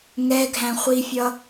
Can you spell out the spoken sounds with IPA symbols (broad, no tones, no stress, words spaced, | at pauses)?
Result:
ŋɛɡʱæ̃χʷifʲʌ